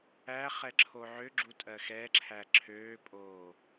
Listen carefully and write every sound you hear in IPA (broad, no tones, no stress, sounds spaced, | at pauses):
æ χ ɛ ǁʰ o ʕ ø ɡ͡ǁ u tʼ ɜ x ɛ ǁʰ æ ǁʰ øː pʼ oː